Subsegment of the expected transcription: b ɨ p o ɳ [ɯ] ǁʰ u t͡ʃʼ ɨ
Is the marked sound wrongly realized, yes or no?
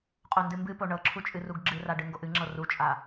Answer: yes